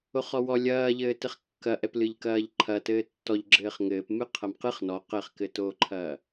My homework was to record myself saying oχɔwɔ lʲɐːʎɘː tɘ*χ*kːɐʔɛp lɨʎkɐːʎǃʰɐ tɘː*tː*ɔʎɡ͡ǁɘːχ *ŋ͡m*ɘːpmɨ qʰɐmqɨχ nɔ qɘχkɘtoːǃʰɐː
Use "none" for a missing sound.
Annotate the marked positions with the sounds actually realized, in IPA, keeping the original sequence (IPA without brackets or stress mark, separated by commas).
χ, tː, ŋ